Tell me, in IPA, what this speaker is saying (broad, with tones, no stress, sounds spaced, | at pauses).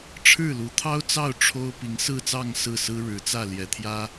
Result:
ʈ͡ʂʰ ɻ̩˥˩ l u˧˥ t̪ʰ ɑ˥ ʊ̯ t͡s ɑ˥˩ ʊ̯ ʈ͡ʂʰ o˥ ʊ̯ p i˧˥ ŋ s ɹ̩˥˧ t͡s ɑ˥˧ ŋ s ɹ̩˥˩ s ɹ̩˥ ɻ ɻ̩˧˥ t͡s ä˥˩ l j ɛ˧˥ t̪ʰ j ä˥